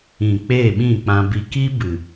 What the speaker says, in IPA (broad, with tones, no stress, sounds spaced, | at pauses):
ĩ˨ k͡p eː˦˨ ɓ ĩ˦˨ k͡p ã˧ b i˧ k i˦ b ɨ˨